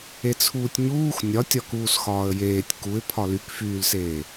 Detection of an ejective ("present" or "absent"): absent